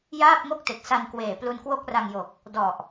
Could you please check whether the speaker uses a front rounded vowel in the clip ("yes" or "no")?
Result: no